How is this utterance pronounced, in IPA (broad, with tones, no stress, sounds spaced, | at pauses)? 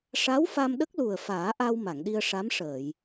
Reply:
ʂ a˧˥ w f a˧ m ɗ ə˦˥ k̚ l u˨˩ ə̯ f aː˨˩˦ ʔ a˧ w m a˨˩˨ ŋ ɗ i˧ ə̯ ʂ a˧˥ m ʂ əː˨˩˨ j